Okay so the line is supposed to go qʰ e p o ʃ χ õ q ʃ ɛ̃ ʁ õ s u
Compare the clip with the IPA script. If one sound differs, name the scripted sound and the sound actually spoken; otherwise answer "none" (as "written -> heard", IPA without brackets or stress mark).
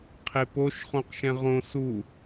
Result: none